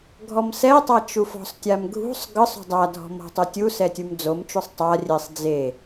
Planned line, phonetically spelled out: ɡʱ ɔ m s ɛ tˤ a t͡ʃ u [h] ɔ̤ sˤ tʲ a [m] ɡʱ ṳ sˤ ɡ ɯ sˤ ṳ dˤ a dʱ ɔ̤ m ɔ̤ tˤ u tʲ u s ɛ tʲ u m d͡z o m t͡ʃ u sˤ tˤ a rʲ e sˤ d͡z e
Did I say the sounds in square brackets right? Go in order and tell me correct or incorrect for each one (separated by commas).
incorrect, correct